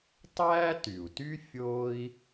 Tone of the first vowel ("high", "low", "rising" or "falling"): high